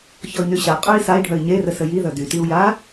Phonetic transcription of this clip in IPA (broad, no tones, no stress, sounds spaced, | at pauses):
ç ɔ i̯ n y ɕ a qʼ œ i̯ s a i̯ ɖʱ œ i̯ ɲ e r ə s ə j i ð œ d y t i u̯ j a